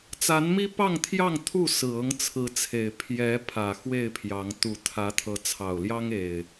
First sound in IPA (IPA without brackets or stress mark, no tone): t͡s